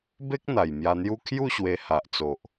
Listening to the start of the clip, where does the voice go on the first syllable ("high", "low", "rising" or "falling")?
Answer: high